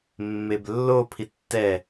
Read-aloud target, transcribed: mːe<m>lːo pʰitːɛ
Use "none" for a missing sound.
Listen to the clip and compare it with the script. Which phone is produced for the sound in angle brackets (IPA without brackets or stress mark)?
b